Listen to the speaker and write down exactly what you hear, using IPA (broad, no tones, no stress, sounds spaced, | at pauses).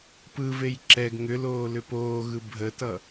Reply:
p ɯ v e j ǁ ɛ ɡ ŋ ʏ l oː l ʏ p oː ɣ ɯ bʱ ə t ʌ